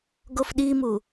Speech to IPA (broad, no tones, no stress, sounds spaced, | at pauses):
ɡ o f ɗ i m u